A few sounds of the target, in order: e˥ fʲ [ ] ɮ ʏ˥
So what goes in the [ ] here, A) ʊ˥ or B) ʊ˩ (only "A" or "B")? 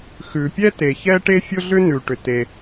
A